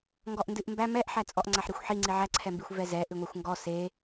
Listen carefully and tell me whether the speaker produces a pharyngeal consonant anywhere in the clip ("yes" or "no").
yes